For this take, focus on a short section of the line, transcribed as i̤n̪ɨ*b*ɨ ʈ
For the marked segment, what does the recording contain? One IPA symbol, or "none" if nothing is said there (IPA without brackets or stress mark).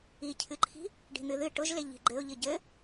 ð